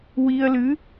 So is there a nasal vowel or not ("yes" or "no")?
no